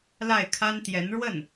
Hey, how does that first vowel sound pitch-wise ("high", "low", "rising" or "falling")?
falling